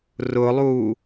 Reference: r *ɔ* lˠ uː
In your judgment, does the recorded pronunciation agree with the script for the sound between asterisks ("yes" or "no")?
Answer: no